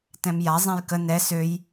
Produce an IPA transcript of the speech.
t ɛ̃ m j a zˤ ɛ̃ j k ə n ɛ s ø j

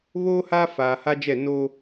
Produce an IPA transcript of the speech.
β oː˦ h aː˦ f aː˨ h a˦ d͡ʒ ɛ˦˨ n o˦

